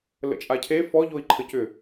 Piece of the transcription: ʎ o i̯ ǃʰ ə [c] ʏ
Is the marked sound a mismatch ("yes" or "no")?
no